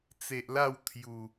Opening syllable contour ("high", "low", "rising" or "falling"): low